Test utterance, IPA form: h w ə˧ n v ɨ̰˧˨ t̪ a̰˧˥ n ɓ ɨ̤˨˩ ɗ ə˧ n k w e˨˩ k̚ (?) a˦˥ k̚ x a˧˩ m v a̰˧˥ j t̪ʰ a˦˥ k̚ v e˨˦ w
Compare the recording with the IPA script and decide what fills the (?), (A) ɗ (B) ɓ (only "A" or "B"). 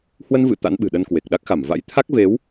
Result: A